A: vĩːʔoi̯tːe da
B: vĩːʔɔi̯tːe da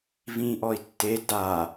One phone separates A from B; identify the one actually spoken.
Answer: B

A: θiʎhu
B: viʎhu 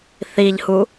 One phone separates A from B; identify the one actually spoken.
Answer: A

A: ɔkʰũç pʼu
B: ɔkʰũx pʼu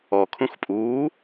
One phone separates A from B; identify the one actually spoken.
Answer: B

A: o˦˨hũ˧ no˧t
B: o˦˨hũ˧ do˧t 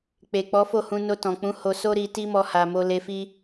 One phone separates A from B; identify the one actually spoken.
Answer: A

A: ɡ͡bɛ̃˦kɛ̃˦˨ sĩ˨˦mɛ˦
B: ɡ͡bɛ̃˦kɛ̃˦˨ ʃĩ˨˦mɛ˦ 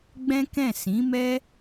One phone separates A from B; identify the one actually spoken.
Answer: A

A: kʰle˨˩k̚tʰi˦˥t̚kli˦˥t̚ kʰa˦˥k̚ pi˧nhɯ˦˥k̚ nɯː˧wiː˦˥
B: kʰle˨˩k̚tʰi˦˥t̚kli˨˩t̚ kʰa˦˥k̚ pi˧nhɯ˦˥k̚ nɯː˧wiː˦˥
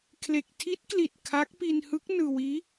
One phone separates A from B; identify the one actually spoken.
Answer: B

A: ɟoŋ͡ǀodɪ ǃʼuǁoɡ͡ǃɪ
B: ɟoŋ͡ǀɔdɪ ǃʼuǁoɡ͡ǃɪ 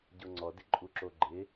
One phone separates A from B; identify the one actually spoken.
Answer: B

